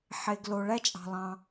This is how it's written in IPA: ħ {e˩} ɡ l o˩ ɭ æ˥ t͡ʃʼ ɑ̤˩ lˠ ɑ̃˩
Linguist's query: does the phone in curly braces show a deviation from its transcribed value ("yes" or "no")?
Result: no